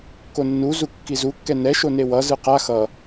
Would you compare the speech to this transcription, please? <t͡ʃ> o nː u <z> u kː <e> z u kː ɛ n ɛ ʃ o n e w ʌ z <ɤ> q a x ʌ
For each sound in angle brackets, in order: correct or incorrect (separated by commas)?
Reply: incorrect, correct, incorrect, incorrect